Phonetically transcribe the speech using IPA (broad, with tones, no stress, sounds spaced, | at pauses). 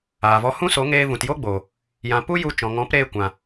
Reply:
aː˨ v ɔ˧ h ũ˦ s o˨˦ ŋ eː˧ v ũ˨ t j o˦ ɡ͡b o˨ | j ã˨ p u˦ j u˧ t͡ʃ ɔ̃˨ ŋ ɔ̃˨˦ p ɾ eː˧ kʷ ã˨